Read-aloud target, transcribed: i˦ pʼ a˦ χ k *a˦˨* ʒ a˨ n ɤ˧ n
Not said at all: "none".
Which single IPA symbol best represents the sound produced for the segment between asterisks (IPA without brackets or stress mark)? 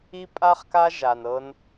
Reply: a˦